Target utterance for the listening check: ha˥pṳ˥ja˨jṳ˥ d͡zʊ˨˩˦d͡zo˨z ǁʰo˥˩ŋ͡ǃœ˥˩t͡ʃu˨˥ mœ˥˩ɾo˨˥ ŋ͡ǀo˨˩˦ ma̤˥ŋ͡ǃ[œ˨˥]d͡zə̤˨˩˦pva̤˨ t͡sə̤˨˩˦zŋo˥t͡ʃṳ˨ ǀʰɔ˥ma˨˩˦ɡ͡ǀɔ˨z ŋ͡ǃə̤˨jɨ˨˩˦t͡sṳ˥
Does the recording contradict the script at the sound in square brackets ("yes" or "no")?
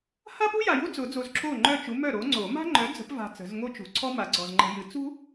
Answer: no